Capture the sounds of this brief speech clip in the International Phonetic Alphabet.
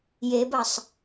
jebɐsˤ

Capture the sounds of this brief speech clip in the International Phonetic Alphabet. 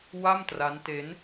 wa˥˩mtra˦˥nte˦˥n

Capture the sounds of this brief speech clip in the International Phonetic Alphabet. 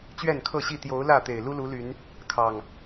t͡ɕɥɛ˥˨nkʰɤ˥˨ɕi˥˨ t̪jo˨˦ʊ̯ lä˥˨ t̪e˨˩ɪ̯lu˦lu˨˦ly˨˦n | kʰɑ˨˩ŋ

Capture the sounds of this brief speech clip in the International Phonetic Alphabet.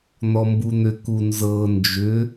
n̪ɔmbun̪ʏ kunzɤ nd͡ʒʏ

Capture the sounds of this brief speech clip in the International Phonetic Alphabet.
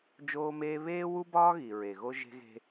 d͡ʒoː˦meː˦ βeː˦wu˦bɒː˦ ɣi˨ ɹe˨ɣo˦ ʒe̤˦ɣe̤˦

